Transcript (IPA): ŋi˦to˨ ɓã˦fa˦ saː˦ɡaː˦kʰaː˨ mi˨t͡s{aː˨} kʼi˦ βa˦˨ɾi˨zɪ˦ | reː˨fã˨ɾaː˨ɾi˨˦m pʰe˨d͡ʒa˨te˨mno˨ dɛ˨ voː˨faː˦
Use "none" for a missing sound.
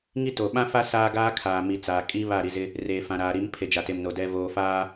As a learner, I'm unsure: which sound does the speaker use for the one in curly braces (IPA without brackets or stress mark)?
aː˨